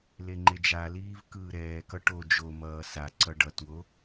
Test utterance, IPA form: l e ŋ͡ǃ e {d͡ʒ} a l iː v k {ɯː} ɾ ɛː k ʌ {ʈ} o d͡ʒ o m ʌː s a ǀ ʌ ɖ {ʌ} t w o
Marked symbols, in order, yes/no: yes, yes, yes, yes

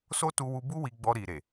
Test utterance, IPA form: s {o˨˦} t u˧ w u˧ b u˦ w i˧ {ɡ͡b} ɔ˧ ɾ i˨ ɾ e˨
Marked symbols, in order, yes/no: no, yes

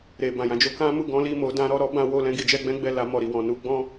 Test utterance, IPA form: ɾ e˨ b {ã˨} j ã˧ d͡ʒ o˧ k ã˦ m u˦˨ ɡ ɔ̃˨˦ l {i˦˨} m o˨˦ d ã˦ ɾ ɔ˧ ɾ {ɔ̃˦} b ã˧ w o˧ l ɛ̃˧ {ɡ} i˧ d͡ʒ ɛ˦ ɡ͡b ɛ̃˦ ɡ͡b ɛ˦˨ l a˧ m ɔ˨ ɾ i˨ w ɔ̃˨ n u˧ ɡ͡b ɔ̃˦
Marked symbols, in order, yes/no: yes, yes, no, yes

